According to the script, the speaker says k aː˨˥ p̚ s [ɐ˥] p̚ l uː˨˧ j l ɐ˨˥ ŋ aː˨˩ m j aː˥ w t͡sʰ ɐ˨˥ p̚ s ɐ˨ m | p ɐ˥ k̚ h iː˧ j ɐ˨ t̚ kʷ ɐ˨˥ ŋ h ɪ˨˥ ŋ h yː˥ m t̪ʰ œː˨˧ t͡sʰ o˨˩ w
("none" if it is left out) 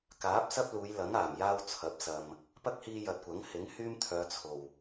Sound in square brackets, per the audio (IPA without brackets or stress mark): ɐ˥